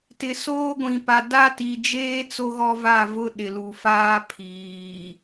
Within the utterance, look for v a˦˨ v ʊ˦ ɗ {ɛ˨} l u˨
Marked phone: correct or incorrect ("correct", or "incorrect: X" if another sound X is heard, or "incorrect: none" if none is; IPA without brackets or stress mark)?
incorrect: ɪ˨